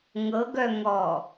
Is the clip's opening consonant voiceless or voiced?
voiced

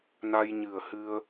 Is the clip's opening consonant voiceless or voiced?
voiced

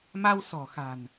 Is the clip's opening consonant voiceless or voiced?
voiced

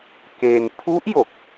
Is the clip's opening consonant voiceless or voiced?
voiceless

